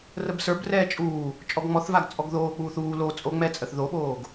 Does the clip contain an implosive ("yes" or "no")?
yes